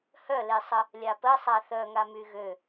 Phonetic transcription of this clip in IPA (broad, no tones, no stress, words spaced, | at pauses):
hœlesˤə | lʲapə sˤaθœŋa myɣø